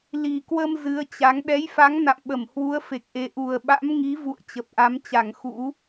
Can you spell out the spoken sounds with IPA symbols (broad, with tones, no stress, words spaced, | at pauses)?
li˨˩kwə˧m zɨ˨˦ə̯t͡ɕa˨˦ŋ ɗɛ˨˦jfa˨˦ŋ na̰˧˨mɓə˧˩m hwu˨˦ə̯fe˨˩k̚ʔe˨˩ ʔu˨˩ə̯ɓa̰˧˥mŋi˨˦vṵ˧˨ə̯ t͡ɕə˨˩p̚ʔa˨˦mt͡ɕa˧˩ŋ xṵ˧˥